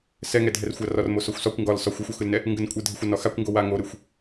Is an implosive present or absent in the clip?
absent